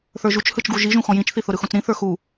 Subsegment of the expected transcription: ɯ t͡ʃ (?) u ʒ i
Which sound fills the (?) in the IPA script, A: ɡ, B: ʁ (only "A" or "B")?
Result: A